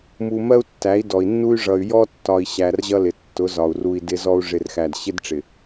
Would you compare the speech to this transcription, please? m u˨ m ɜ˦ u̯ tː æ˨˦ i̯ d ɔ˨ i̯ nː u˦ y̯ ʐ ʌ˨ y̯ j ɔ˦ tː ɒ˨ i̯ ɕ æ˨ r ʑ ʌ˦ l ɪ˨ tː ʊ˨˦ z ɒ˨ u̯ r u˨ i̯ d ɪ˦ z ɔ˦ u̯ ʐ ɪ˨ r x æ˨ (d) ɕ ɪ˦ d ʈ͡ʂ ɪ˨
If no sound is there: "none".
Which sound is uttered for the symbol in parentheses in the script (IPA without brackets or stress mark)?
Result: d